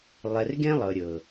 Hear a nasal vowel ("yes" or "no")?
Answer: yes